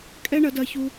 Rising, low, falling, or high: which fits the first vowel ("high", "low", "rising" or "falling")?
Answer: high